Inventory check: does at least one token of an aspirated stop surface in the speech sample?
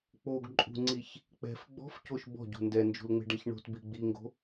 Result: no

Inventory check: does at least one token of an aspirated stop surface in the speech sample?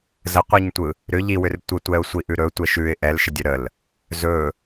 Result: no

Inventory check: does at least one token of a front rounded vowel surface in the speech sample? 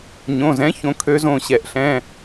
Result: yes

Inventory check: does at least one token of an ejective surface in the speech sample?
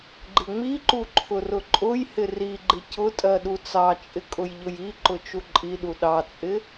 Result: yes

